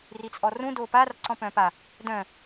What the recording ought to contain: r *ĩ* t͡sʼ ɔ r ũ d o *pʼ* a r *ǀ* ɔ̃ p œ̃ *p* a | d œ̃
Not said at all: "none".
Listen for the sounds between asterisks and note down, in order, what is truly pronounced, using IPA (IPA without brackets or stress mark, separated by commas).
i, p, ǀ, p